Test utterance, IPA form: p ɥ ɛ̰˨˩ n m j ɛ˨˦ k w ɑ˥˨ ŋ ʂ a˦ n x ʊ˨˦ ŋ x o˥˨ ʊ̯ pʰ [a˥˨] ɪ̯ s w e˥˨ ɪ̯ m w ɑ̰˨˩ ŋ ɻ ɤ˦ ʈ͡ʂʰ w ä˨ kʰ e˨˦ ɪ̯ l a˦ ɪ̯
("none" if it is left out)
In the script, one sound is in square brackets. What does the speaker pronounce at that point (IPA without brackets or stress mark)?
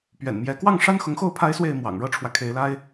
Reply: a˦